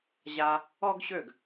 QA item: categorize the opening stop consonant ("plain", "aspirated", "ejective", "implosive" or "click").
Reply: plain